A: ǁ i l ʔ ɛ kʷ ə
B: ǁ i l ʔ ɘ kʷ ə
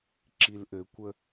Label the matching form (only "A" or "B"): B